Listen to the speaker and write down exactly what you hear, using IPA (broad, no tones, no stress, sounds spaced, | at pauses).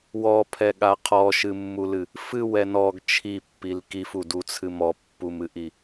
w ɔ pʰ ɛ ɠ a qʰ ɔ ʃ ɨ mː u l ɨ | f ɨ w ɛ n ɔ ɡ t͡ʃʰ i pː i l k i f u d u t͡sʰ ɨ m ɔ pː u m ɨ ʔ i